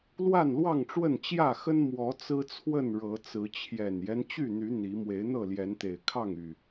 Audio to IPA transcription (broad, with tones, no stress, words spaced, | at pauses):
lwa˥˨nlwɑ˥˨ŋʈ͡ʂwə˥˨n t͡ɕjä˥˨ xə˦n mwɔ˨˦ t͡sɹ̩˦t͡sʰwə˥˨nɻɤ˨˦t͡sɹ̩˨˦ t͡ɕʰjɛ˨˩njɛ˦n t͡ɕy˥˨n̪y˨˦ n̪i˨˦ mwe˨˦ɪ̯n̪ɤ˥˨ljɛ˨˦nt̪e˨˩ɪ̯ kʰɑ˥˨ŋy˨˩